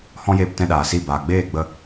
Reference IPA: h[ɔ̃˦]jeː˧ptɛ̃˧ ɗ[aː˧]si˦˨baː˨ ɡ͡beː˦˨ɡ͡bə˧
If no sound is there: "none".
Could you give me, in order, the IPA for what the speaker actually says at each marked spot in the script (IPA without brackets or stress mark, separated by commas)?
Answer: ɔ̃˦, aː˨